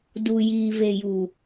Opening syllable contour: low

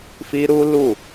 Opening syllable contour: high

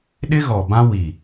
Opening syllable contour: high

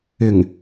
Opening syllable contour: low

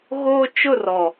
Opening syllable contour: high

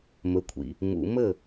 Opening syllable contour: low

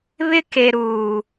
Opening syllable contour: high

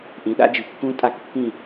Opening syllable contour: rising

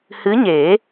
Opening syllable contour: rising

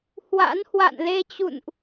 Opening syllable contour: rising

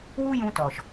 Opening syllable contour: high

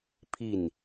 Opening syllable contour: falling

